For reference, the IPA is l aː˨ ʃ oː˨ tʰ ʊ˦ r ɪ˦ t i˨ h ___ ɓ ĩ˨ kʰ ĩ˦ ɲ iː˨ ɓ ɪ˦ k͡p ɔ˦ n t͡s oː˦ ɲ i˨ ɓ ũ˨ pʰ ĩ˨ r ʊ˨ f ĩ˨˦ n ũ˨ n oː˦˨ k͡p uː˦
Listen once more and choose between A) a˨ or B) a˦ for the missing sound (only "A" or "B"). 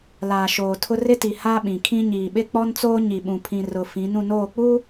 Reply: B